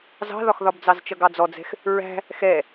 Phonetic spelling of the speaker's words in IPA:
z ɑ̤ ð ɒ x ð ɒ b d͡z ɑ z t͡ʃ ʌ ɡ ɑ d͡z ɔ d͡z ɛ̤ x | ɹ æ̤ | x ɛ

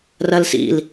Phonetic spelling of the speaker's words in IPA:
r ɜ l s ḭ l

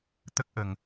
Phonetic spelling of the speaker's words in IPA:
t̪ ə˦˥ k̚ ʔ ə˨˩ ŋ

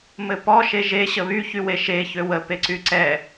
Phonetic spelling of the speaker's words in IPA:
m ɘ p ɔ ʃ e ʒ e ɕ ə β y ç y w e ʃ e ç ø w ə p e ǀ y ǀ ɛ

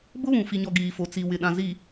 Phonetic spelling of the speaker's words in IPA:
b ʊ˦ β ũ˨ f i˨ ɲ ɔ˨ ɡ iː˨ f o˨ t͡s i˨ w ɪ˨ ɗ ã˨ z i˨

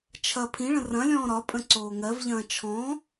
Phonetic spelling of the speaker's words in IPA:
t͡ʃʰ ɐ pʰ ĩ ɭ ə̃ r ɐ̃ lʲ ɔ̃ː ɾ ɒ pʼ ə̃ ǀ oː ŋ ɜ v ʎ ɐ̃ː t͡ʃʰ ɔ̃

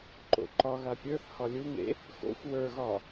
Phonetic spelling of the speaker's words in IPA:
ǃ o̰ ǃ ɒ ɣ a pʲ ə˞ θ h ɒ lʲ u ŋ ḛ | x o̰ xʷ w ə˞ ɣ ɒ

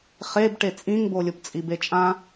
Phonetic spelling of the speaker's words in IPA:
χ e b ʈ e t͡sʼ ĩ ŋ b o lʲ o p t͡sʼ i b e t͡ʃʼ ã

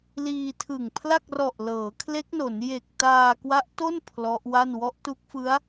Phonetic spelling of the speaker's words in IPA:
l iː˧ tʰ ɯ˨˩ ŋ pʰ l a˥˩ k̚ r ɔ˨˩ ʔ l ɤː˩˦ kʰ l e˦˥ k̚ n o˩˦ n j e˨˩ k̚ t aː˧ k w a˦˥ ʔ t o˥˩ n pʰ l ɔ˦˥ ʔ w a˥˩ n w ɔ˦˥ ʔ t u˦˥ k̚ f ɯ˦˥ a̯

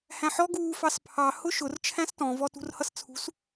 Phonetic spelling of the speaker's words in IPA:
h æ̃ ħ ɔ ɡ uː f ɑ s pʰ ɑ h ʊ ʃ ʊ r t͡ʃʰ æ̃ s t ɔ̃ v ɔ t ṳ r h ʌ s t͡sʰ ṳ s

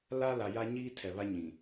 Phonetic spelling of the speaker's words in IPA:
l a˦ l a˨ j a˦ ɲ iː˦ tʰ ɛ˨ β a˦ ɲ ĩ˨

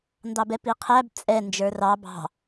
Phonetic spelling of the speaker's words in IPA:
n d ɑ b ɛ p i qʰ æ b t͡sʼ ɛ n d͡ʒ ə˞ r ɑ b ɑ̤

